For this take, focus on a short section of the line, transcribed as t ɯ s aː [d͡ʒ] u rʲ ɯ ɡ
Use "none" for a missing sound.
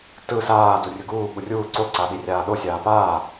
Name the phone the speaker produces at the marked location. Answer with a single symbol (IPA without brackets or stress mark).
d